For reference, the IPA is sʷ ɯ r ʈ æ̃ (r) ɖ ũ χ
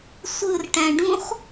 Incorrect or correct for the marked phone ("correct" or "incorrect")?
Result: incorrect